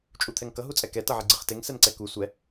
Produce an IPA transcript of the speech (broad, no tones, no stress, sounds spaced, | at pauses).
t͡ʃʼ u t̪ʰ ɛ ŋ k ʌ ɦ u t͡sʼ ɛ k ɛ t ʌ ʕ i ɡ͡ǀ ɯ χ t e ŋ s ɛ n ǀ ɛ k u sʷ ɛ